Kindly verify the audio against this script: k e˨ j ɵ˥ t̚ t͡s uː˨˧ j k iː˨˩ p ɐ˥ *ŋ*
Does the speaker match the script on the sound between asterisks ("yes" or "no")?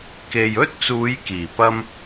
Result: no